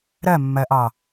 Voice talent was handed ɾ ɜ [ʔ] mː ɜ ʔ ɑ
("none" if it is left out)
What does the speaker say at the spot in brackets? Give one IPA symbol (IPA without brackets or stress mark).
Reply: none